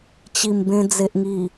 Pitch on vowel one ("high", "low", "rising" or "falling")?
low